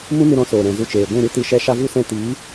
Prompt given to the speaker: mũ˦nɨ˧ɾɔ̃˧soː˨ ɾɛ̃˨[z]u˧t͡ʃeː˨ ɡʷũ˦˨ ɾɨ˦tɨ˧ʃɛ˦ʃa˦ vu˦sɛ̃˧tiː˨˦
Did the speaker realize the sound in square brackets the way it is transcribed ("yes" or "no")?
yes